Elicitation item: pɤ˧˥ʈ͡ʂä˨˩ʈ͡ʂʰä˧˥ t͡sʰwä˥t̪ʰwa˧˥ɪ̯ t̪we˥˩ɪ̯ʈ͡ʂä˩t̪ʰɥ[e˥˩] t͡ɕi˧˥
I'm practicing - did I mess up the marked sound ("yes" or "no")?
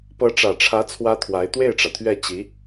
yes